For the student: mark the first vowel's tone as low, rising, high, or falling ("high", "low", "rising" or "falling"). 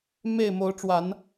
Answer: falling